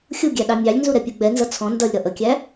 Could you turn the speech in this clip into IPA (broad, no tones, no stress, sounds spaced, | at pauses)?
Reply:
xʲ u ɡʲ æ ɗ ɑ mʲ ɑ lʲ n z u ɾ ɛ pʲ u ɡ͡b ɛ n z ʌ t͡sʰ ɔ̃ n d ʌ lʲ ɾ ʌ ʔ ə kʲ æ